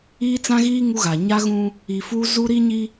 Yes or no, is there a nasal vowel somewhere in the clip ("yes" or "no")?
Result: yes